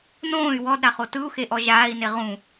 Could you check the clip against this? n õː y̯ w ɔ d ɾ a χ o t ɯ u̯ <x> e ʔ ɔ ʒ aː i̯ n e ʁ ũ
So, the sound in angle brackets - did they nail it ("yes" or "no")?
yes